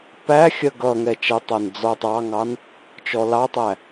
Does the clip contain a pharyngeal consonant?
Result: no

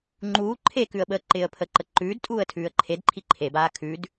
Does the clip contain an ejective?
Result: yes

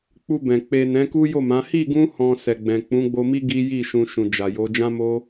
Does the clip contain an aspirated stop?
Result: no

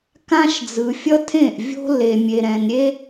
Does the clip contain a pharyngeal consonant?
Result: no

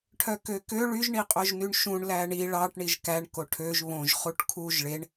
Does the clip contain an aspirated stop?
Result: yes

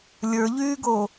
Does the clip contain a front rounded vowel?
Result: yes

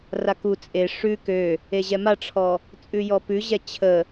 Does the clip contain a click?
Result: no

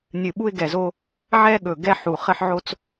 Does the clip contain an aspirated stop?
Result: no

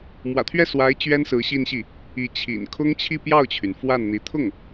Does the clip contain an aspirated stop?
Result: yes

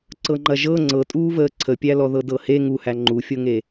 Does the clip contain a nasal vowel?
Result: no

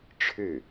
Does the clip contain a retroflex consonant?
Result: yes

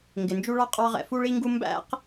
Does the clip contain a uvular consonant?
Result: yes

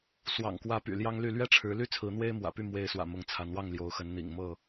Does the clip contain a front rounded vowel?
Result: yes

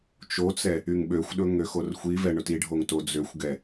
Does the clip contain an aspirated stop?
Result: no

